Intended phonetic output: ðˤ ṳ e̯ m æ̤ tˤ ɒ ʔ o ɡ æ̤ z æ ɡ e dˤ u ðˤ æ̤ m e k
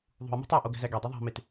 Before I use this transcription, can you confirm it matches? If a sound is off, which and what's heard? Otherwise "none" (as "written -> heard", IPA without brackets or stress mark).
k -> t